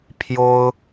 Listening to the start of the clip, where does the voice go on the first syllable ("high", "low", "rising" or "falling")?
high